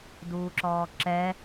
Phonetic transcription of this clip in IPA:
d uː ǁ ɔː ǁ ɛ

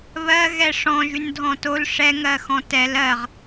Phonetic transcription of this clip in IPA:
β ɜ ɣ ɛ ʂ ɔ̃ ʒ y n dʱ ɔ̃ t o l ʂ ɛ ŋ ɜ x ɔ̃ t ɛ l ɜ ʁ

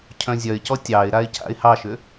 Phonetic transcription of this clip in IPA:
cʰ œ̃ zʲ œ ɪ̯ c ɔ tʲ ɑ ɪ̯ ɾ a ɪ̯ c a̰ ɪ̯ h ɑ ʃ ʏ

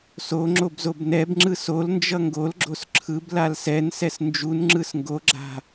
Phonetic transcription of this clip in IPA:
s o ŋ͡ǁ o b z o b n ɛ b ŋ͡ǁ ɯ s o l n d͡ʒ ʌ ŋ ɡ o l ɡ͡ǁ o s ǁʰ ɯ b l a l s ɛ n s ɛ s n d͡ʒ u n ŋ͡ǁ ɯ s ŋ ɡ o ɡ͡ǁ a̤

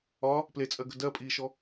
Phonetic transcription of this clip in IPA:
ɒ | p l e t͡sʼ ɜ ɡ ə̤ d ɜ pʼ iː ʃ ɔ

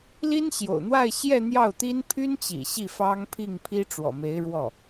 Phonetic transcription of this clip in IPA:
l i˥ n ɕ j o̰˨˩ ʊ̯ n̪ w a˥˧ ɪ̯ ɕ j ɛ˥˧ n̪ j ɑ˥˩ ʊ̯ t̪ i˥ n pʰ y˥ n t͡ɕ ḭ˨˩ ɕ i˥˩ f ɑ˥ ŋ pʰ i˥˩ ŋ pʰ i˥ ʈ͡ʂ w ɔ̰˨˩ m e˧˥ ɪ̯ ɻ w ɔ˥˩

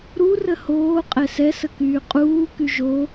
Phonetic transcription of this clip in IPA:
ɾ u r ə h oː qʼ ɛ s ɛ s ə k yː qʼ uː k y ʒ o

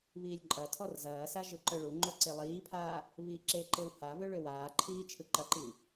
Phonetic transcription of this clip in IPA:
β iː lʲ ǃʼ ɐ tʰ ɔ r z ɐː s a ʒ ɯ ǃ œ ɭ u ŋ͡ǃ o ǀ e lˠ iː pʰ aː | β iː ǁ e ǃ e w h a β ø ɭ ø w aː ǃʰ iː t͡ʃʰ ɯ ǃ ɐ ǃ i

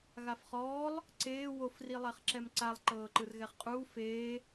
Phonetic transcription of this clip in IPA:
ɣ a f χ ɔː lˠ | ǀ eː w o f r i lˠ ɛ χ ǁ ɛ m ǀ a lˠ ǃ ɤː ǃ ɯ r ɣ ɛ χ qʼ uː f eː

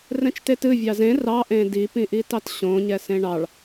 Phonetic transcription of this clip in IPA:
r ɛ̃ t͡ʃ t e t ɨ vʲ ɑ z ẽ r ɑ ʔ ẽ d i p ĩ ʔ i t ɑ t ɕ õ ɲ ɛ s ẽ ɳ ɑ ɭ

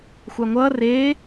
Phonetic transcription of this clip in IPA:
xʷ a ŋʷ ʌː r eː

